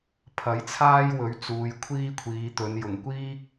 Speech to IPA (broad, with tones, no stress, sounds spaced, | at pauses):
pʰ ɐ˨˥ j t͡sʰ aː˥ j w ɵ˨˥ ɥ t͡s uː˨ j kʷʰ iː˥ kʷʰ iː˨˧ t̪ ɵ˨˧ n j ʊ˨˩ ŋ kʷ iː˥ k̚